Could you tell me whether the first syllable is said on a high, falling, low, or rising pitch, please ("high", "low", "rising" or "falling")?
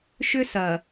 high